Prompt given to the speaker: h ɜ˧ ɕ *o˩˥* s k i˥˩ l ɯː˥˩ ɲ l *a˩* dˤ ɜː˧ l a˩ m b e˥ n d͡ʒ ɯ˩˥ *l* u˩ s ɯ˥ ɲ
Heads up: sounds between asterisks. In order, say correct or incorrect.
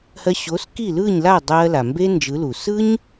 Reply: correct, incorrect: a˥˩, correct

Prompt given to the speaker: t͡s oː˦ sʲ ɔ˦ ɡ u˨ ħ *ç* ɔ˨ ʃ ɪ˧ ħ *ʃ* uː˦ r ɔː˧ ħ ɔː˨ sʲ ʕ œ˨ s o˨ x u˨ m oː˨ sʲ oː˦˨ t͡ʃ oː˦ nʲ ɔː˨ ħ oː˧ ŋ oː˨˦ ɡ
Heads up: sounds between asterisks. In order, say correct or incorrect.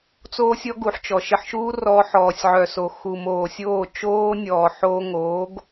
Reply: incorrect: t͡ʃ, correct

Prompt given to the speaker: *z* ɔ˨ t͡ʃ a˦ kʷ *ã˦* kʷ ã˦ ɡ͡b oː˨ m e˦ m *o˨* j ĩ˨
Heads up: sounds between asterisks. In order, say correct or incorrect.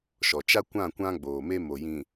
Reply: incorrect: ʃ, incorrect: ã˦˨, correct

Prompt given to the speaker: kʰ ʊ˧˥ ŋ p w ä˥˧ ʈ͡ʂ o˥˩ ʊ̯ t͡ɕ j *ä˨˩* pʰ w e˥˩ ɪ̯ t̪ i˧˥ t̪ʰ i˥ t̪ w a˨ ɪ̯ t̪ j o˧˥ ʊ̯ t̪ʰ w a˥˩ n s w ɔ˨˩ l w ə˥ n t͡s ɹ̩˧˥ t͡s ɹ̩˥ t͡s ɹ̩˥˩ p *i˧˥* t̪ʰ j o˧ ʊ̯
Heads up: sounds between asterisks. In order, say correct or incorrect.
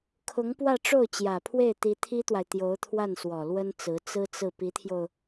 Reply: correct, correct

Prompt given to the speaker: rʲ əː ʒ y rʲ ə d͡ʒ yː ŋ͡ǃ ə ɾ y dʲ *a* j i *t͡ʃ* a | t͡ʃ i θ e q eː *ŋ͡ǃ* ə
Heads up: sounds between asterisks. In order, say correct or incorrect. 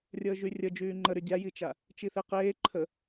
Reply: correct, correct, incorrect: ǃʰ

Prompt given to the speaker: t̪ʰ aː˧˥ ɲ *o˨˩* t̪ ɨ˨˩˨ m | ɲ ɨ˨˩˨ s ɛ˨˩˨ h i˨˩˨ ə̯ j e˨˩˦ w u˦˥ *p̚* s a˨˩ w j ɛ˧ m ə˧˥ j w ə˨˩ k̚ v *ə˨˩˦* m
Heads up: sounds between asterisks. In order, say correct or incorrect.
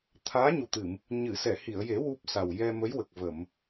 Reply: incorrect: u˨˩, correct, incorrect: ə˨˩˨

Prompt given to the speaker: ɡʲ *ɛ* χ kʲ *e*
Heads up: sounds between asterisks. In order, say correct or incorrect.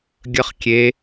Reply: incorrect: ə, correct

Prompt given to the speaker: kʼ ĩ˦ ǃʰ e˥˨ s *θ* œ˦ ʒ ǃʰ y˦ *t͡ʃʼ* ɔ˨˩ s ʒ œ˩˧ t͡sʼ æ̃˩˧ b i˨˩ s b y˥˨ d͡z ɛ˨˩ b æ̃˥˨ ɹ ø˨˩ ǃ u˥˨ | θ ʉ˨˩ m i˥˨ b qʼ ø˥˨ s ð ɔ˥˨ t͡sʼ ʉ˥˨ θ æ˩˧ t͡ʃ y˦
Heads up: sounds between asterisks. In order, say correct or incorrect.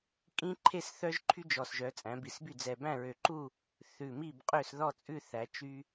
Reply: correct, incorrect: d͡ʒ

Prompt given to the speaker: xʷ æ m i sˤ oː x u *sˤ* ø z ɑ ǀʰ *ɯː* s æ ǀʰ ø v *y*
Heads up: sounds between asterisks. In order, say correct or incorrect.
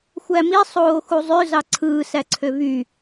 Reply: incorrect: zˤ, correct, correct

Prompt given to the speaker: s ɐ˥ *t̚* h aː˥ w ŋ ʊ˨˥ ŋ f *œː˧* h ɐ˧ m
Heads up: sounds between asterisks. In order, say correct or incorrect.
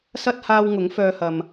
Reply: correct, incorrect: œː˥

